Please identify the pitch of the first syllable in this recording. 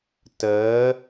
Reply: rising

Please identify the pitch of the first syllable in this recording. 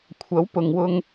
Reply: rising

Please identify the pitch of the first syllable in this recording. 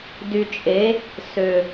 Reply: low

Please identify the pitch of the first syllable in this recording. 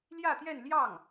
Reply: falling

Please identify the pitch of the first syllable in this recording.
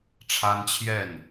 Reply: high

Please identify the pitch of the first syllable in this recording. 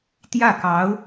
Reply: falling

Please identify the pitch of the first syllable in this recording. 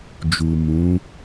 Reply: low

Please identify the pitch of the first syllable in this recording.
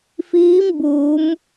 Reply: rising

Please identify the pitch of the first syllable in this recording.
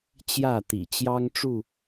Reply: falling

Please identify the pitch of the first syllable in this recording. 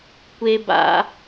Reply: high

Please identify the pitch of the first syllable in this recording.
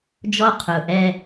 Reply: high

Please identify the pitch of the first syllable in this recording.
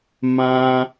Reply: high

